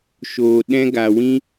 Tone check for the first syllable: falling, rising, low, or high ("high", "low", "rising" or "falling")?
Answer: low